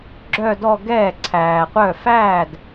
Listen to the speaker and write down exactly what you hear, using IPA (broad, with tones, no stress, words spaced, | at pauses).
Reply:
ɡ͡ǁœ˥˧dɔ˥˧ɡɛː˥˩ ǀʰæː˩qʷœ˥˩ fæː˥˩d